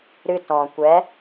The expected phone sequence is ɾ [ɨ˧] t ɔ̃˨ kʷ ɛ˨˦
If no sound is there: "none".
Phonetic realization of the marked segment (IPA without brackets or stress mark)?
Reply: ɨ˧